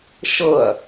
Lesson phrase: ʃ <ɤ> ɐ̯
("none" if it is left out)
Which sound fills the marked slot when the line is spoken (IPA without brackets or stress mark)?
ɤ